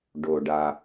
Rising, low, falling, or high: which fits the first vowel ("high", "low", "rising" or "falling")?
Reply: low